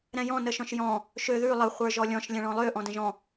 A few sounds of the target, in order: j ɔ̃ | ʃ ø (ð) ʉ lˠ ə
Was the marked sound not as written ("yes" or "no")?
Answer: no